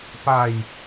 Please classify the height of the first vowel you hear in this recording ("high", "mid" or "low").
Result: low